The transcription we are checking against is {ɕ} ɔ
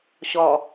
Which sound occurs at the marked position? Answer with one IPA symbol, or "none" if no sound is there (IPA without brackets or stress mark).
ɕ